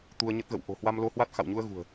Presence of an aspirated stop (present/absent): absent